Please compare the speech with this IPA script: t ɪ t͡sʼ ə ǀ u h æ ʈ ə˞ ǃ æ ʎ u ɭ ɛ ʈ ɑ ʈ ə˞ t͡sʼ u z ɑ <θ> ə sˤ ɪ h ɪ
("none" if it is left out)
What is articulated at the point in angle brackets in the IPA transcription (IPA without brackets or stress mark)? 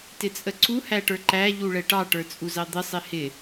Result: d̪